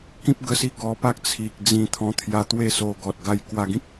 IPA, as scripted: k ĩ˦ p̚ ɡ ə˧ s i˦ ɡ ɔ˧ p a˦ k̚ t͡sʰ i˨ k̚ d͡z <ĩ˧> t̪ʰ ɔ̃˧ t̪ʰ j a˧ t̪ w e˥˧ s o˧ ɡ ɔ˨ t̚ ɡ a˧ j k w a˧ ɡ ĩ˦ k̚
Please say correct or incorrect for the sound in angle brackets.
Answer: correct